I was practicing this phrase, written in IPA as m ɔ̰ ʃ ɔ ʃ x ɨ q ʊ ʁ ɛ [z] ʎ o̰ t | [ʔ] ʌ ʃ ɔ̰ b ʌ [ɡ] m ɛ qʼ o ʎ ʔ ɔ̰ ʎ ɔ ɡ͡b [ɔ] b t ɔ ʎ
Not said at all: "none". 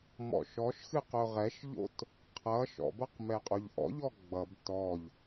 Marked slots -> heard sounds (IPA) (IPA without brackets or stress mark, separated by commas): ʃ, qʰ, q, ʌ